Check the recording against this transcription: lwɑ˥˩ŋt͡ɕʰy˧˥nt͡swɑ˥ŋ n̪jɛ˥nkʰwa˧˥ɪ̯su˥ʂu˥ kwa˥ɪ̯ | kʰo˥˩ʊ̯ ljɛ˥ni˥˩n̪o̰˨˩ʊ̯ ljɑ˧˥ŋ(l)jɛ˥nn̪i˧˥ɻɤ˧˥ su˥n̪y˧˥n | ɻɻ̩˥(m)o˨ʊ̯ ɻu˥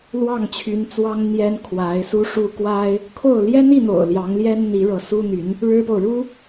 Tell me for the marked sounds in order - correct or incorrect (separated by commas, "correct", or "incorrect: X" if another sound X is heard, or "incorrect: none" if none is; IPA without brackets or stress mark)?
correct, incorrect: p